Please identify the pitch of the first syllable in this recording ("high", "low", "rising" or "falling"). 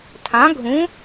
rising